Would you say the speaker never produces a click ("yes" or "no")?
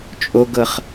yes